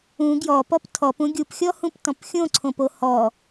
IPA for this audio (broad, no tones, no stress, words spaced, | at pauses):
ũ ɡjɔpɔp tʰɔpũ ɡʲupxʲɔhũptɔ̃p xʲõǀʰõpo hɔ